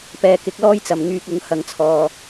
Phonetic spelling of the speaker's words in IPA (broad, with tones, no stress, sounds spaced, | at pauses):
p ɛː˨ k ɪ˨˥ k̚ l ɔː˥ j t͡s ɐ˨˩ m ŋ yː˨ k̚ ʊ˨˧ ŋ h ɐ˨ ŋ t͡sʰ ɔː˨